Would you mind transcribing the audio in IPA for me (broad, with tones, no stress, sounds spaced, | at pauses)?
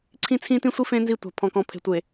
ǀʰ ĩ˦ t͡sʰ ĩ˦ t ĩ˦ sʷ i˦ f ẽ˦ n z i˦˨ tʷ a̤˨ pʰ ɔ̃˨ k ɔ̃˨ pʰ e̤˨ tʷ e˨